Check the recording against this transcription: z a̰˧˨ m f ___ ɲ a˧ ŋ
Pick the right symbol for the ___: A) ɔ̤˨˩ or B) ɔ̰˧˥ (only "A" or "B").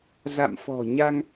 A